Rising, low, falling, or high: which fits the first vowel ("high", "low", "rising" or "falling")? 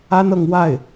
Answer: high